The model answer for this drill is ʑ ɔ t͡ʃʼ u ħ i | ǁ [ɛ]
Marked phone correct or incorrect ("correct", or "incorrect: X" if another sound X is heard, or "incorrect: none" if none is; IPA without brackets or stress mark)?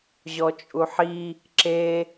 incorrect: e